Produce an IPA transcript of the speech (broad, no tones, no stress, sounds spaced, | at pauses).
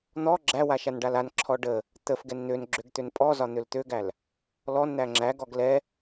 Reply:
n̪ ɔ ɡ͡ǁ æ w a ʃ a n ɖ a l a n ǁʰ ɔ ɖ ə | t̪ ə f ɡ ɛ n n̪ ø n ɡ͡ǁ ø ɡ t̪ ø n pʼ ɔ z ɒ n̪ ø l t̪ ø ɡ æ l | l ɔ n n̪ æ ŋ͡ǁ æ ɡ ɔ ɡ l ɛ